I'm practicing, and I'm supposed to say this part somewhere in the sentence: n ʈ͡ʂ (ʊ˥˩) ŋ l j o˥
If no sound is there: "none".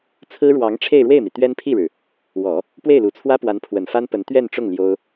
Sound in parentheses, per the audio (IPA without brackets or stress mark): ʊ˥˩